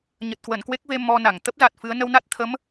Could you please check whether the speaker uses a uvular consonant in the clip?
no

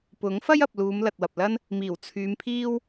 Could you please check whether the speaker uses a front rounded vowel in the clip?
yes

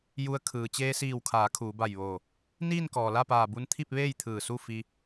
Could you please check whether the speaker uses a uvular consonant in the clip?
no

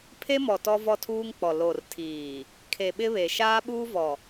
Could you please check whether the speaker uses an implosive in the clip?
yes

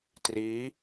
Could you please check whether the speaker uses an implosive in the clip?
no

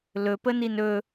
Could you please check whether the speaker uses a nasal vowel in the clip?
no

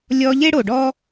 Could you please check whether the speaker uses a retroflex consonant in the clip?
yes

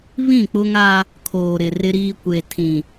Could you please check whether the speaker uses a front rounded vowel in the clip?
no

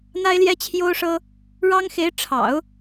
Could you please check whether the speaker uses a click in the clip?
no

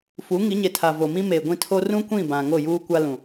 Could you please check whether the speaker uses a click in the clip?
no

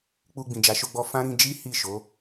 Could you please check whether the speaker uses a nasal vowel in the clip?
yes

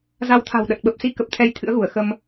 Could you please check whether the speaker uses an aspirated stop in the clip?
yes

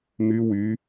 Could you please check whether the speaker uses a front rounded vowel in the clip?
yes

